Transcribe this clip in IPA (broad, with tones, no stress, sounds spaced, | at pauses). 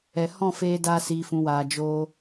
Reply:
ɛ˨ h ɔ̃˦˨ f eː˧ d aː˧ s iː˨ f ũ˨ w aː˨ d͡ʒ oː˧